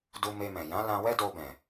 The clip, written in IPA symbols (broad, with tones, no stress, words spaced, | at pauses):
du˧me˧mɛ̃˨ jã˨˦lã˧wɛ˦ do˧bɛ̃˨